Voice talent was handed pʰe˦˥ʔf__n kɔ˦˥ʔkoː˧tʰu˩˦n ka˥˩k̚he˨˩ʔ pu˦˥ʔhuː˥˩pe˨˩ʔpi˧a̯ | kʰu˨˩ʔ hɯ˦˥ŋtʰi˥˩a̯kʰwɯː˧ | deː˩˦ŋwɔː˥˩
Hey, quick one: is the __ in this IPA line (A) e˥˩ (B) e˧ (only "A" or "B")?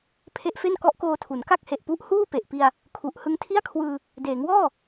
A